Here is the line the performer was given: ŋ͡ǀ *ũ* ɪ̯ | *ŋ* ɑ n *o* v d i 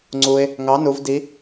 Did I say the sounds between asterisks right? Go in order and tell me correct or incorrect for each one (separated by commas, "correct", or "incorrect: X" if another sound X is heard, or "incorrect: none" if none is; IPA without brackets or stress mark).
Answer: incorrect: u, correct, incorrect: u